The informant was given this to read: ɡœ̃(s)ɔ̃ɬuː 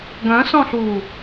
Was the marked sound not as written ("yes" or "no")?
no